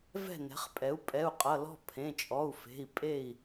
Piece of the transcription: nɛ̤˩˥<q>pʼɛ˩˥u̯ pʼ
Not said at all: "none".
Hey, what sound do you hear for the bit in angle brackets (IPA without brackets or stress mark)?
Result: χ